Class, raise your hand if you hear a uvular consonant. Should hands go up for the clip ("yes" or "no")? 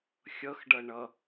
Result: no